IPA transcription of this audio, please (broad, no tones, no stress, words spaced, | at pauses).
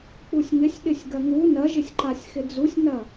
k͡pusʲŋɪsʲ ɗɪsʲɡɐŋu nɐʒɪsʲǃasʲ xɪd͡zusʲnɐ